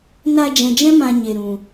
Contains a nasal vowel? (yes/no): yes